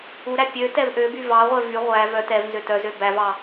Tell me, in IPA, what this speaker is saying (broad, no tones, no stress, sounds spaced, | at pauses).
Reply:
u ɾ æ pʲ ø t ɛ v ʔ ø b y v ɑ ʁʷ ɛ v y ʁʷ æ v œ t ɛ v n z ø t œ z ø b æ v ɑ